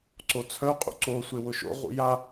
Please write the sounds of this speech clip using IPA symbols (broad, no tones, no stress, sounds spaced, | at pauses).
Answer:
ǀ o t͡sʰ œ qʼ ṵ ǀ o sʷ e w ʊ ʃ o̰ ʁ ṵ j a